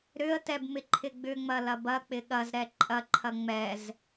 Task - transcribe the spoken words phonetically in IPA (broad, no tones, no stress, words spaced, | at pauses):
ɾʏə̯tɛb mɪǃʰɪɡ͡bʏŋ͡mɐ lɐbɐk͡pɪ ɠɐzɾɛ ǃʼɐǃʰɐ ŋ͡mɛz